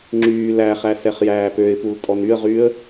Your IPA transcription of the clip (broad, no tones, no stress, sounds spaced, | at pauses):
ŋ͡ǁ yː l æ χ æ s ɛ χ j æː p ø ɪ̯ p u l tʼ ɔ n y ə̯ ʁ yː ə̯